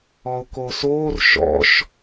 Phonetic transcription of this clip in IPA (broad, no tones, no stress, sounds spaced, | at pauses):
ɔ ʊ̯ k o s oː r ʃ ɔ̰ ʃ